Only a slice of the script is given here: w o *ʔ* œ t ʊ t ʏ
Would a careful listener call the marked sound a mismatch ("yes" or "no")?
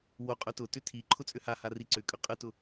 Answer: yes